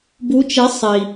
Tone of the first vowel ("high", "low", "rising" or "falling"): rising